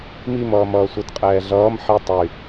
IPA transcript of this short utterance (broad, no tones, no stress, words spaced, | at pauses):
mimʌːm ʌːsʷətqʼɛː ɮʌːm ħi tˤy